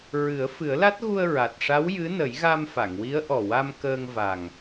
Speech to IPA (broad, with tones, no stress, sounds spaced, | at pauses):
ɹ ɨ˨˩˦ ə̯ f ɨ˨˩˦ ə̯ l a˦˥ t̚ ɣ u˧ ə̯ ɹ a˨˩ t̚ ʂ a˧˥ w j ɨ˧˥ n ə˨˩˦ j ɣ a˧ m f a˨˩˨ ŋ w i˧˥ ə̯ ʔ ɔ˨˩ w a˧ m k əː˧ ŋ v a˨˩ ŋ